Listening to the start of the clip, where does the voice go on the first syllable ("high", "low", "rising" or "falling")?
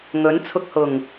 rising